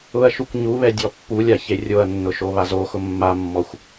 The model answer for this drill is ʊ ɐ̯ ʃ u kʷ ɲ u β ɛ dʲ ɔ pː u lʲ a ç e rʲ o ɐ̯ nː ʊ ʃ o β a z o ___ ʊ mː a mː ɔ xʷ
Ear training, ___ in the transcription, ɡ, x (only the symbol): x